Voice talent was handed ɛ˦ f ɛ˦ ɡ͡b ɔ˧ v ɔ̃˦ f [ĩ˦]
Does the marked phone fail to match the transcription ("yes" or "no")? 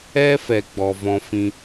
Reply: no